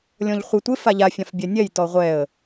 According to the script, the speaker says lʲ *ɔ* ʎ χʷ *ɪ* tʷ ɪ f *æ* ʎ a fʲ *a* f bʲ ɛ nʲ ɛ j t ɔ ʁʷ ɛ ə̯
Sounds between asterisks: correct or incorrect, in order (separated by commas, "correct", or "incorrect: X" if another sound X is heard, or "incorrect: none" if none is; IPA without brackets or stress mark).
incorrect: ɔ̃, correct, incorrect: a, incorrect: ã